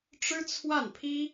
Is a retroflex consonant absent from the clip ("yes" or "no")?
no